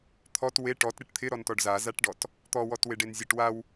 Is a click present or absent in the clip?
absent